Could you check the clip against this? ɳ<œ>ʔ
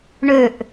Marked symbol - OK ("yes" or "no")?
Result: no